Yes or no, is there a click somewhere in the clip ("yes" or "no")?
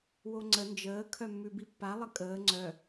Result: yes